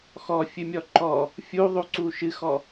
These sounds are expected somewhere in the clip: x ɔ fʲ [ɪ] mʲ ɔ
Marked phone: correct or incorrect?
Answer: incorrect